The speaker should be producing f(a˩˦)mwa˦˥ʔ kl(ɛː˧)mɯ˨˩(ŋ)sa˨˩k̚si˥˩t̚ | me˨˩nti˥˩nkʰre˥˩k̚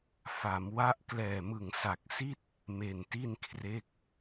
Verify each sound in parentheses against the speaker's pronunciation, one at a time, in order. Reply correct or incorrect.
correct, incorrect: ɛː˨˩, correct

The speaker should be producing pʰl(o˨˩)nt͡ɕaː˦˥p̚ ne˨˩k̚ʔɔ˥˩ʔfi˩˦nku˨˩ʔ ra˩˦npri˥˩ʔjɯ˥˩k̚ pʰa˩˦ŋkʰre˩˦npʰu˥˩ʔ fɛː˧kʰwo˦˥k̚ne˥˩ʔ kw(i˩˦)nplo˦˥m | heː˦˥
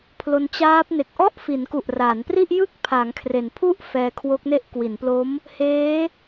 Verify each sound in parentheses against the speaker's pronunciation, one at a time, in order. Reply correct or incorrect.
incorrect: o˧, correct

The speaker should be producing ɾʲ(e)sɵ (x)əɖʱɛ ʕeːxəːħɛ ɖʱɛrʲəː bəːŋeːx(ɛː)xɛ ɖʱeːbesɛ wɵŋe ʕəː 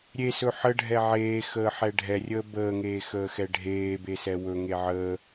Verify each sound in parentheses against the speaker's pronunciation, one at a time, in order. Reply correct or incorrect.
correct, incorrect: ħ, incorrect: əː

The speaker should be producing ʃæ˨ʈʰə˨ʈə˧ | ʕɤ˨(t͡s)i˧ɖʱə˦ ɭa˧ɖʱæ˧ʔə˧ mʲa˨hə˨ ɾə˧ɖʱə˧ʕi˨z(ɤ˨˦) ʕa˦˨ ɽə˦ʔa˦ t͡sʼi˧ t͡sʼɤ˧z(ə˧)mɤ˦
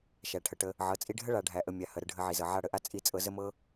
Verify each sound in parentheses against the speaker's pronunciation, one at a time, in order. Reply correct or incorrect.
incorrect: t͡sʼ, incorrect: ɤ˨, incorrect: ə˦

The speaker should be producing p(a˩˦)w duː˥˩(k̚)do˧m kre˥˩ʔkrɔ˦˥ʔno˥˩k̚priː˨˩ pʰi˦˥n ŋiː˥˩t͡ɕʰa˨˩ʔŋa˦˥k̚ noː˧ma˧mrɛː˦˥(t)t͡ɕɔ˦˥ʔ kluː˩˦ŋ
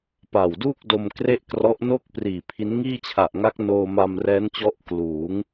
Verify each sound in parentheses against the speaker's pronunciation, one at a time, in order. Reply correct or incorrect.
incorrect: a˨˩, correct, incorrect: n

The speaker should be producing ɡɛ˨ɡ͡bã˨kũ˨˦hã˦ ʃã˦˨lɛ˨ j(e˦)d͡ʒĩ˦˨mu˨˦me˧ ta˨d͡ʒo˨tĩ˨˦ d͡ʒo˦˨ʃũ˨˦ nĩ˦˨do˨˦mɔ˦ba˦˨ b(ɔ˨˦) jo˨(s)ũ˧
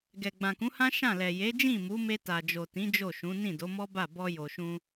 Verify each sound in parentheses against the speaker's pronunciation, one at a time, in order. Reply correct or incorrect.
incorrect: e˨˦, incorrect: ɔ˧, incorrect: ʃ

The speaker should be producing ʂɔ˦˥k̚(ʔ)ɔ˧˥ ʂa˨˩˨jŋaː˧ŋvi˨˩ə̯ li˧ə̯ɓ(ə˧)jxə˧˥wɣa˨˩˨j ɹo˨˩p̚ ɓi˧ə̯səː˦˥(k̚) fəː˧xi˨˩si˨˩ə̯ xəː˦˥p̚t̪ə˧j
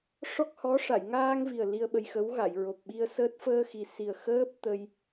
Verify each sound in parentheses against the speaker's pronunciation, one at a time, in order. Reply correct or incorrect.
incorrect: h, correct, incorrect: t̚

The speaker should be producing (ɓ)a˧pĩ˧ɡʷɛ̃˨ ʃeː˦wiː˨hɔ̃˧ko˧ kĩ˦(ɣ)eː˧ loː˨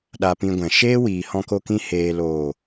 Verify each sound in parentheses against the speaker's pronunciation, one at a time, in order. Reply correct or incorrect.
incorrect: ɗ, incorrect: h

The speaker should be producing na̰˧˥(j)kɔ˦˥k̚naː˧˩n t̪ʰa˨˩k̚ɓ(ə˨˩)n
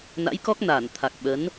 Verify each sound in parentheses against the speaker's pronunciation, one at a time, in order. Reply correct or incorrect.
correct, incorrect: ə˨˦

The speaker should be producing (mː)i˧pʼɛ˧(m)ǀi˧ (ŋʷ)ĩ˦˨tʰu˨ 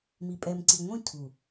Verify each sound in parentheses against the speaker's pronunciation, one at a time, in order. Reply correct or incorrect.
incorrect: m, correct, correct

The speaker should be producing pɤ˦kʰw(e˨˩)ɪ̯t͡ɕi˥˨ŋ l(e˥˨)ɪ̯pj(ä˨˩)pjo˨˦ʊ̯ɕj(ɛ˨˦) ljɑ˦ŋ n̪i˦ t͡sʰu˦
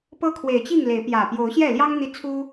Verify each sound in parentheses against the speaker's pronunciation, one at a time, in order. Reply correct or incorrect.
correct, incorrect: e˨˦, correct, incorrect: ɛ˥˨

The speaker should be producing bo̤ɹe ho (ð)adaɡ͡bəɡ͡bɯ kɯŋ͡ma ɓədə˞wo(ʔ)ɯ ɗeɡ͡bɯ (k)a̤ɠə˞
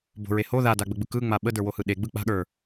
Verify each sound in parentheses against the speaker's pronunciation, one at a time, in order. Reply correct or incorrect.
correct, incorrect: h, incorrect: k͡p

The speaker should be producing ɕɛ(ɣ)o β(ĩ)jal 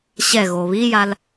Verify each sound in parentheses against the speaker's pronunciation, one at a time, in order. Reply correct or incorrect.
correct, incorrect: i

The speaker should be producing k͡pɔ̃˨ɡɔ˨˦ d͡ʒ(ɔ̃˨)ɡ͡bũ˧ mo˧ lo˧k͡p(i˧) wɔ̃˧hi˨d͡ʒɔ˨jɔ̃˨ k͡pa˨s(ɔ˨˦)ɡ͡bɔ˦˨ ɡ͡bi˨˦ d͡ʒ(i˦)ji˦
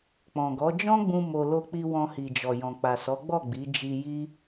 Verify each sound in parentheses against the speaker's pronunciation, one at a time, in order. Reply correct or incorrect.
incorrect: ɔ̃˦, correct, correct, incorrect: i˧

